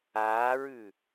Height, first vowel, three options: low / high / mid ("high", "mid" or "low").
low